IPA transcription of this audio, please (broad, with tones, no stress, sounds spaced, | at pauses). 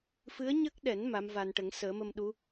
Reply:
f ɨ˧˥ ə̯ ɲ ə˦˥ k̚ ɗ ɛ˨˩˦ n m a˧˥ m v a˧ n ʈ ə˨˩˦ ŋ s əː˨˩˦ m ə˧ m ɗ u˧˥